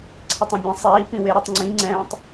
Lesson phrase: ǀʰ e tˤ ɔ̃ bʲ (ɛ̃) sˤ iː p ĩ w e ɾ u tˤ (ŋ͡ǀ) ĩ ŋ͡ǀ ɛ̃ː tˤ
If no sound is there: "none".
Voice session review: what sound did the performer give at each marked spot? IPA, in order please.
ɛ̃, ŋ͡ǀ

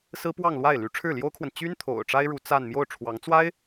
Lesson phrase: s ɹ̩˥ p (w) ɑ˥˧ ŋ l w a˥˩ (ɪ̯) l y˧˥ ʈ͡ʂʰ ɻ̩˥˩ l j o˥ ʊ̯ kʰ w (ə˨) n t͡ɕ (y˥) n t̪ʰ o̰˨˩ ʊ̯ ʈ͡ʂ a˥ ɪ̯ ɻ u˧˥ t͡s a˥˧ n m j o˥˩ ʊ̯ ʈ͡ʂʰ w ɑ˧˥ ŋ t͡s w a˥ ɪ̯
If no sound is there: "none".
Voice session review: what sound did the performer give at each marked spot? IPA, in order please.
w, ɪ̯, ə˨, y˥

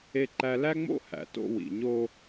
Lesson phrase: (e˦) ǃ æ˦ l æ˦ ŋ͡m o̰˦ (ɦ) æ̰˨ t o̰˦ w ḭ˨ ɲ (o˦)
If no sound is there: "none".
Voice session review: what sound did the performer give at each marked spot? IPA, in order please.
e˦, h, o˦

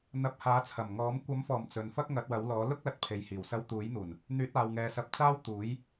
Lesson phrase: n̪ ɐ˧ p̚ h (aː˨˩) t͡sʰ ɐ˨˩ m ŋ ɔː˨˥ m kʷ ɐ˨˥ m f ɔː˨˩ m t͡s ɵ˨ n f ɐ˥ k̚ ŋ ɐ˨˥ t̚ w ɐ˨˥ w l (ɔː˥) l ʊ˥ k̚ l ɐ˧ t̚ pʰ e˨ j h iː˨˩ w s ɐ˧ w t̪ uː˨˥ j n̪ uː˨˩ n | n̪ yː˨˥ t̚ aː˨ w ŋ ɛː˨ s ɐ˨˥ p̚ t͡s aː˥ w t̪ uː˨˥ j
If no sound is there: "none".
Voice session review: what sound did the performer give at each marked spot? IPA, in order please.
aː˨˥, ɔː˨˥

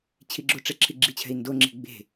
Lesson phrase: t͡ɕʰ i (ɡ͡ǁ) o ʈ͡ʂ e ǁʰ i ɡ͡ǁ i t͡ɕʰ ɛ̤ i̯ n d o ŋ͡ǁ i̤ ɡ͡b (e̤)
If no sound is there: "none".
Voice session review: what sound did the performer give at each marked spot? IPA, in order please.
ɡ͡ǁ, e̤

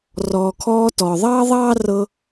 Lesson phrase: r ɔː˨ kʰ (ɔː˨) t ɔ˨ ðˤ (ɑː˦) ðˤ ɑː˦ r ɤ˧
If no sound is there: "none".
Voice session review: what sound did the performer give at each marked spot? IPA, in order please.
ɔː˧, ɑː˦

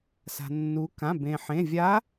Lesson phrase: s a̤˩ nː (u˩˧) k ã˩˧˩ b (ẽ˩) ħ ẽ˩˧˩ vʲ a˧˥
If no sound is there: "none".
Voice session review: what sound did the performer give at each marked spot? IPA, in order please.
u˩˧, ẽ˩

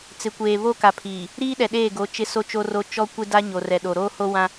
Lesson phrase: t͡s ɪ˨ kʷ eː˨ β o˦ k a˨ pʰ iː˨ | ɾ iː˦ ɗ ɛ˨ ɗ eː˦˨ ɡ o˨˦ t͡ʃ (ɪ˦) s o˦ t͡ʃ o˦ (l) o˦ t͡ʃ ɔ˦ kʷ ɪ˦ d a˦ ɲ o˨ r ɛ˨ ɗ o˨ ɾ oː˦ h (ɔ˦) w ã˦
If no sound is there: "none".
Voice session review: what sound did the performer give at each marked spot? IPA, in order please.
ɪ˦, r, o˦

